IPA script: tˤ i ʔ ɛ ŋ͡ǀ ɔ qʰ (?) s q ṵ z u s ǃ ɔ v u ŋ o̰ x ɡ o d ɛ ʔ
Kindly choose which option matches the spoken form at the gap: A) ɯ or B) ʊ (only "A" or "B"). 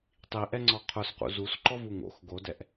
B